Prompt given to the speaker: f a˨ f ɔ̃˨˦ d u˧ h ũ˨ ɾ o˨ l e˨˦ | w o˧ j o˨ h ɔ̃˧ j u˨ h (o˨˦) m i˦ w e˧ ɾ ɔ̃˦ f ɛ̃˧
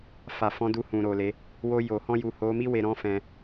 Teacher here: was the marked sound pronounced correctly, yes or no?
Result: yes